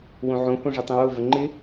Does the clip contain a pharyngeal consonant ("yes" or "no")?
yes